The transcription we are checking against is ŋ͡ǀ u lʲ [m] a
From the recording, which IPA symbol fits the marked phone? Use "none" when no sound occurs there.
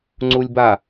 b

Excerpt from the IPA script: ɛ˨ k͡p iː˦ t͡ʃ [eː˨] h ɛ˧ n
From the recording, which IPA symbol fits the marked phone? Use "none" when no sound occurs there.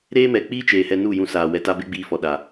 eː˨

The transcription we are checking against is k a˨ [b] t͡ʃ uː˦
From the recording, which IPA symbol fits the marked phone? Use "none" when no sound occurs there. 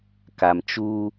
m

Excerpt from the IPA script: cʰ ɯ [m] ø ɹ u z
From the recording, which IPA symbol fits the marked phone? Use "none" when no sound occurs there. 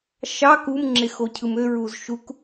m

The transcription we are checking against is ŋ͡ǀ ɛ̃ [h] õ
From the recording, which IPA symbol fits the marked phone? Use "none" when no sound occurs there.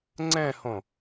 h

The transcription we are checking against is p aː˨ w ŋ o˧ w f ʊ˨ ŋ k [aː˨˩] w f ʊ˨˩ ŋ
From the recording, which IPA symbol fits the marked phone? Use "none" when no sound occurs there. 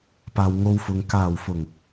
aː˨˩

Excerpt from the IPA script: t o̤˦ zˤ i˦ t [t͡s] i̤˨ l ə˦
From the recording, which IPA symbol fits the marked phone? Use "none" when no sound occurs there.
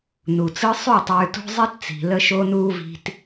t͡s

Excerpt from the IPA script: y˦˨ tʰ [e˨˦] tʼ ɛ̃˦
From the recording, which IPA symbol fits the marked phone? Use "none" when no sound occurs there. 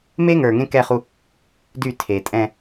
e˨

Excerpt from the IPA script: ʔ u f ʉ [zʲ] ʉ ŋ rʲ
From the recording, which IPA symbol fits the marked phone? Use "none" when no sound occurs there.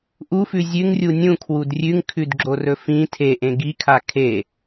zʲ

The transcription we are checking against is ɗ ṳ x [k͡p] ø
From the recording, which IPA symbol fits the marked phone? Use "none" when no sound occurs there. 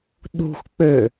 k͡p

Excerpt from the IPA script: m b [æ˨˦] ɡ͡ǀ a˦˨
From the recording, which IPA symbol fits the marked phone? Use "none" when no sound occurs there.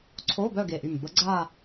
ə˨˦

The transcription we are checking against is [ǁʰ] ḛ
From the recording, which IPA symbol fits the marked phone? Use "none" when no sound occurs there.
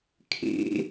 kʰ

